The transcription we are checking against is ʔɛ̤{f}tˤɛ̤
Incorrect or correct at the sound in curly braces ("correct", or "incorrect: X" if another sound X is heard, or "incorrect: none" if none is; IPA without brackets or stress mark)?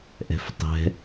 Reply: correct